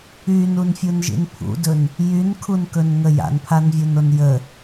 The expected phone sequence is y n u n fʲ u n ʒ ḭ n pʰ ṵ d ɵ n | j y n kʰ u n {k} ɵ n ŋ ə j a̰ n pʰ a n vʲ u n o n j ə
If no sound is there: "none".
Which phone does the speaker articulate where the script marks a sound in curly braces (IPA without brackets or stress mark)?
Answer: k